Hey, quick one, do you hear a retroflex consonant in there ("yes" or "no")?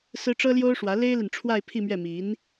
yes